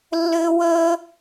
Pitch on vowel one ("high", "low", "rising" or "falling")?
high